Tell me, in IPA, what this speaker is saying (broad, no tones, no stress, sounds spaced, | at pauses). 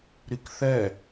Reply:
ɾ i k θ ɛ